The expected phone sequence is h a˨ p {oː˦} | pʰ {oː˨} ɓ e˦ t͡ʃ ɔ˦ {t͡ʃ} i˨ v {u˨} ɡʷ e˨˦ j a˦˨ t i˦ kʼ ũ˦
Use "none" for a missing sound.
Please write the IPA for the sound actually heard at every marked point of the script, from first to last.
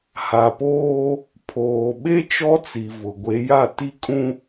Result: oː˦, oː˨, t͡s, ʊ˨

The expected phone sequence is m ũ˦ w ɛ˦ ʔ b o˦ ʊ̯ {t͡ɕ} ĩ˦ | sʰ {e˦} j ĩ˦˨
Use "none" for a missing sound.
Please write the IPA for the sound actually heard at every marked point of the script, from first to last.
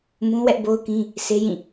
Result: k, e˦

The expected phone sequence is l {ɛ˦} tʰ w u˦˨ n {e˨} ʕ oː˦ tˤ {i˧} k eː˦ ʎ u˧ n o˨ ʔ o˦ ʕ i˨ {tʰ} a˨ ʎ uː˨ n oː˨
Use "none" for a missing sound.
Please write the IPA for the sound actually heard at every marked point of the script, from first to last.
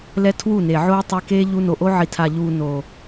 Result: ɛ˦, e˨, i˧, tʰ

